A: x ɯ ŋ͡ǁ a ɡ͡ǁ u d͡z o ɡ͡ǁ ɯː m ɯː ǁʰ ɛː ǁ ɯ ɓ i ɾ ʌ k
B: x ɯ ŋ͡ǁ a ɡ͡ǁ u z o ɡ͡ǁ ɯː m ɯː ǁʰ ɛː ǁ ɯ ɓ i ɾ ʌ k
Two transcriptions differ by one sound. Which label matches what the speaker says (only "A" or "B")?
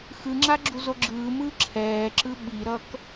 B